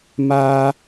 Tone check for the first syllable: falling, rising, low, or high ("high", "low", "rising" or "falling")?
high